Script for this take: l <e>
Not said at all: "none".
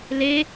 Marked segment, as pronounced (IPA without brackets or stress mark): e